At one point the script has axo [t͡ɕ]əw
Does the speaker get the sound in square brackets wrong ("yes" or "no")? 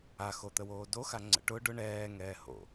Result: yes